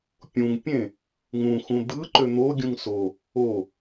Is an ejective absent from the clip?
yes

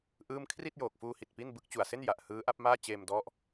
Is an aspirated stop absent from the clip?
no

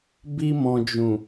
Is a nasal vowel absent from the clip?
no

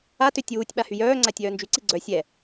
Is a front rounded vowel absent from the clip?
no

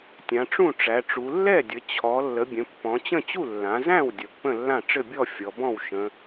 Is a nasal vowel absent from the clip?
no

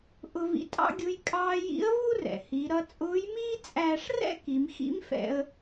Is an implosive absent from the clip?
yes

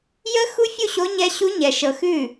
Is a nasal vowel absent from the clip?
yes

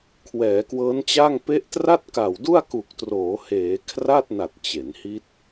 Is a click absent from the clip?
yes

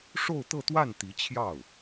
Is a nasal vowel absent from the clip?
yes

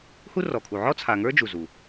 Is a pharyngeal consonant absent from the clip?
no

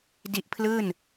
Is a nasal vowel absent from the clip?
yes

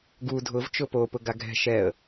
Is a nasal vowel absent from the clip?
yes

